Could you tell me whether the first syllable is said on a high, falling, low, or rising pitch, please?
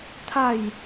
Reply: falling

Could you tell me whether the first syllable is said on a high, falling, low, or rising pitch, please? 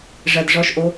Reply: low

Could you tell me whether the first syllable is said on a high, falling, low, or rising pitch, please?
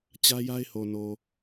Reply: high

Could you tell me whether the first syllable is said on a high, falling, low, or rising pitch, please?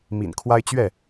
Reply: low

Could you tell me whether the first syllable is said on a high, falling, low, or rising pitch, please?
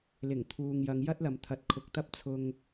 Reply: low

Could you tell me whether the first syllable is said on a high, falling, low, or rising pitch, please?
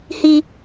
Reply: high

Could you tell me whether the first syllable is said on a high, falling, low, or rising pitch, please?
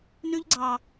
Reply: high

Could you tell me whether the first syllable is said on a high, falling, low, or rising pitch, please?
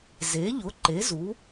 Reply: rising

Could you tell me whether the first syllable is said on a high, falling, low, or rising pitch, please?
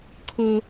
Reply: high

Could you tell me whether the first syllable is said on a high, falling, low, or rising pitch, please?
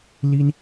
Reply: high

